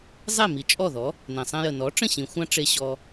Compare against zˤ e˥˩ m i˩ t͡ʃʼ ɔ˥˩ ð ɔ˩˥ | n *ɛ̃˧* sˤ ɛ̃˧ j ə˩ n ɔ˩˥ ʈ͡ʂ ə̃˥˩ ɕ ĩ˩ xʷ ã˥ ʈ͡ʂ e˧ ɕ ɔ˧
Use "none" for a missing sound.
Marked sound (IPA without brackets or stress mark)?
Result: ɛ̃˩